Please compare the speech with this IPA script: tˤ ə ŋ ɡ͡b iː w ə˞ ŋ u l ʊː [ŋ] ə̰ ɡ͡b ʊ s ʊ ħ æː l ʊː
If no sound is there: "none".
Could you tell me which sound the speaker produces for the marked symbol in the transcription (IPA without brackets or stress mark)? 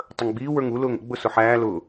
ŋ